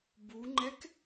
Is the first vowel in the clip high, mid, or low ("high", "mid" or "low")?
high